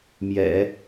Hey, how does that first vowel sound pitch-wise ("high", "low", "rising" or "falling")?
low